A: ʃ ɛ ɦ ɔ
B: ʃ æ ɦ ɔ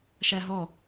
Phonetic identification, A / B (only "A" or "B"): B